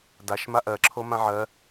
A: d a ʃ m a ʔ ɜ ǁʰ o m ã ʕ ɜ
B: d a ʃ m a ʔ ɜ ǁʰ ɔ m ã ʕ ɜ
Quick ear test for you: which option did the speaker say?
A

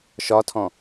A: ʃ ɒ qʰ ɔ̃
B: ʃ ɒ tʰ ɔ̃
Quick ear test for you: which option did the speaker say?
B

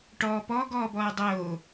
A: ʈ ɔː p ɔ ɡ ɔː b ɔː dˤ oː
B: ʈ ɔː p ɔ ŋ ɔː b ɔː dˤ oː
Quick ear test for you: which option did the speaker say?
A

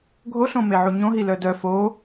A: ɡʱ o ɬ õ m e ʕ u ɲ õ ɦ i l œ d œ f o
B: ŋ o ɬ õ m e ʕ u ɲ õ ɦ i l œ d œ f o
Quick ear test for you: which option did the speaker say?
A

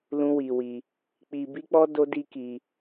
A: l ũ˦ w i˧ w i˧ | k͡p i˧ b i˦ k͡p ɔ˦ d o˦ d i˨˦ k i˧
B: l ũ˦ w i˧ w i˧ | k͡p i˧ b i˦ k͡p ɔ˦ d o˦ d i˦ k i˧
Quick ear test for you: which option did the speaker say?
B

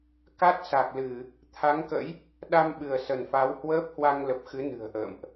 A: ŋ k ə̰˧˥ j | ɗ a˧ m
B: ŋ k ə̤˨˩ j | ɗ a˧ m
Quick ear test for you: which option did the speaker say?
A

